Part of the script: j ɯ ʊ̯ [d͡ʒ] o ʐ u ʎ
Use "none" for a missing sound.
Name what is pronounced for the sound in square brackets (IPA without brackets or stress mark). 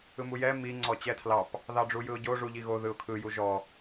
ɟ